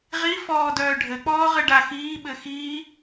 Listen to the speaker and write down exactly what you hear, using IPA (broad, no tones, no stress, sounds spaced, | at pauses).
ʁ i f ɔː d œː ɖʱ ɘ k͡p ɔː ʁ ɘ ɖ a x iː ɓ ɘ x iː